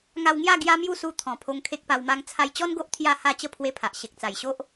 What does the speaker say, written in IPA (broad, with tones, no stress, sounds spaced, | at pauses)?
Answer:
ŋ a˧ w ŋ j a˥˧ ɡ j a˦ m j u˥˧ s u˧ t̪ʰ ɔ̃˨˩ pʰ o˧ ŋ kʰ e˦ k̚ p a˧ w m a˦ ŋ t͡sʰ a˧ j t͡ɕ ɔ˦ n ɡ o˦ ʔ t̪ʰ j a˥˧ h a˥˧ t͡ɕ ə˦ pʰ w e˧ pʰ a˨ ʔ ɕ e˨ k̚ t͡s a˨˩ j ɕ o˦ ʔ